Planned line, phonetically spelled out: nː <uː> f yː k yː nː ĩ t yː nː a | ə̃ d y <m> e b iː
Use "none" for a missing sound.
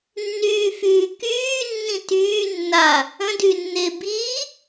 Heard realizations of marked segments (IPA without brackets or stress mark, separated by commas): yː, nː